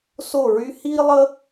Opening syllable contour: falling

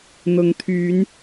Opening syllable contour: rising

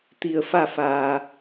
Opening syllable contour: low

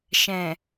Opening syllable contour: low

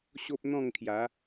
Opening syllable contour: high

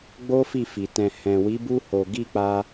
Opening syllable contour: high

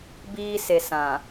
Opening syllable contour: high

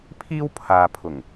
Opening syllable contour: high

